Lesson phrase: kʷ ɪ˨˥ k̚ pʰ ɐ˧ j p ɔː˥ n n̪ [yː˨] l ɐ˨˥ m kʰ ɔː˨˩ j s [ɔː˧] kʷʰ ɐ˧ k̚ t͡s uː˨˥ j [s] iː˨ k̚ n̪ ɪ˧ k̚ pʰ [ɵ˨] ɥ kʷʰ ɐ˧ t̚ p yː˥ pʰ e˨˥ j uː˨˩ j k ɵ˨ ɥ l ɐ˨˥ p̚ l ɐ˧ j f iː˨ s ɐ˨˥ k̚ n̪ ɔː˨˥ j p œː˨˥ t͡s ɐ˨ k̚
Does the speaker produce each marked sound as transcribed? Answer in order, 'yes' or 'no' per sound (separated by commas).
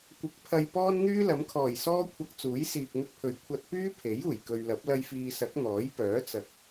no, no, yes, yes